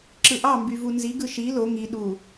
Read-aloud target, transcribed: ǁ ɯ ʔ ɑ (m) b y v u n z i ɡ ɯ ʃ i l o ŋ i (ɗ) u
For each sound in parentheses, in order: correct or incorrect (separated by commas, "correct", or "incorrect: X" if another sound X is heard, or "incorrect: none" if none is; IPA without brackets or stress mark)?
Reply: correct, correct